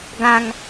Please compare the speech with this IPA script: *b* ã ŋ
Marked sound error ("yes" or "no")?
yes